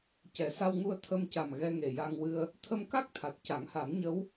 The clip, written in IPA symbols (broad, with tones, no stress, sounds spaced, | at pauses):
c ɛ˨˩˦ s a˧ w ŋ u˧ ə̯ t̪ʰ ə˧ m c a˨˩ m ɣ ɛ˧ ŋ e˨˩ j a˧ ŋ w ɨ˧ ə̯ | t̪ʰ ə˧ m k a˦˥ k̚ t̪ʰ a˨˩ t̚ c a˨˩˦ ŋ h a˨˩˦ m ɲ ə˧˥ w